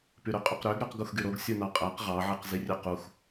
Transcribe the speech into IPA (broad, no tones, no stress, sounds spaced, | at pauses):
p y ɾ ø qʼ y q ɾ ø ɡ ɾ y q ɡ u x ɡ y ɾ o ɡ sʲ u n ɑ qʼ æ q ʁ ɑ ʕ i q z i rʲ ø q u x